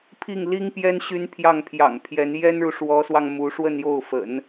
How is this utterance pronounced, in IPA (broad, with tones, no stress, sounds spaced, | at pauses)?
pʰ i˥˩ ŋ l i˥ ŋ p j ɛ˥ n ɕ y˥ n pʰ j ɑ˥˩ ŋ pʰ j ɑ̰˨˩ ŋ pʰ j ɛ˧˥ n j ɛ˥ n ɻ u˨ ʂ w ɔ˧˥ s w ɑ˧ ŋ m u˧˥ ʂ w ə˥˧ n j o˥˩ ʊ̯ f ə̰˨˩˦ n